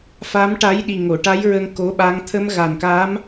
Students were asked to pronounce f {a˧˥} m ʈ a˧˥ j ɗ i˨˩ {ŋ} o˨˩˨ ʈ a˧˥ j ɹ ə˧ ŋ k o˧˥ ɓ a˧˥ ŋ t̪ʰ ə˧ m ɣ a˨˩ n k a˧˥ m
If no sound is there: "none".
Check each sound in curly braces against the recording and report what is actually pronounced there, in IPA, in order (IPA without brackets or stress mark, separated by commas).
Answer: a˧˥, ŋ